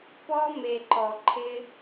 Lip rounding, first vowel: rounded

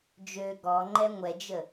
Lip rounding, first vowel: rounded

